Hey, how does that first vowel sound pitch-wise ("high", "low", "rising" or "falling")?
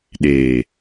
low